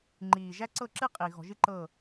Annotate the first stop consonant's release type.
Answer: click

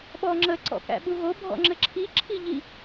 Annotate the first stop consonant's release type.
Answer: implosive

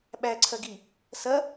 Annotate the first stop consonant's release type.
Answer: implosive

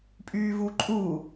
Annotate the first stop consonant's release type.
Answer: ejective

